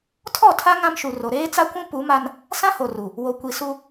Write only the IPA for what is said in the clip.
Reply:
tʰɔ˦˨tʰa˦ ŋã˦mʃu˨ro˨ ɾeː˦t͡sa˦kʷũ˦ pu˨˦ma˦n | sã˦ho˨ru˨ | wo˨ kʷi˨su˦

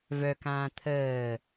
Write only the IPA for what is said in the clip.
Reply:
vœkãː t̪ʰəː

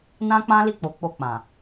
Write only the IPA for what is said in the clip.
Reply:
nã˦k͡pã˦li˦˨ k͡po˨˦k͡po˧ k͡pã˨

